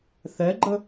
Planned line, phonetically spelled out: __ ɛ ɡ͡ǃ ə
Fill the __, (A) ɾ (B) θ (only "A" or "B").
B